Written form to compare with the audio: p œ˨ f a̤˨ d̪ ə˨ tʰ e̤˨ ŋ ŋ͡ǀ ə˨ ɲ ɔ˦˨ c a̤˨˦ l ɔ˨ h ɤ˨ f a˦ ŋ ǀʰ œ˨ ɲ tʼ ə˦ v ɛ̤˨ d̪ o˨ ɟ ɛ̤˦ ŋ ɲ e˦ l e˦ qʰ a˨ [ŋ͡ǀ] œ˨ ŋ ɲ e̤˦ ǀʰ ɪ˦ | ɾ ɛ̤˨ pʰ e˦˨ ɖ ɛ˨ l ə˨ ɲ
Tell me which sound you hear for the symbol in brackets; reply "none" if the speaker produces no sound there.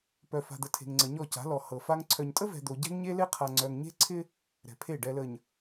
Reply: ŋ͡ǀ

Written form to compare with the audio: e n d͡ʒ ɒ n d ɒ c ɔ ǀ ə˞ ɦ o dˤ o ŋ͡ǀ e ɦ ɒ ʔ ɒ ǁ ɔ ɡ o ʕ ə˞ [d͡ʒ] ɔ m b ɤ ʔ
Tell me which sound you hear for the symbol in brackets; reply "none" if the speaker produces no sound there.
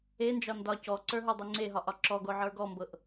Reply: ɡ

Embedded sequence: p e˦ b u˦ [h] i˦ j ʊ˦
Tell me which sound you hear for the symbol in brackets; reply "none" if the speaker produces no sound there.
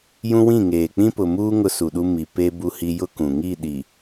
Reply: h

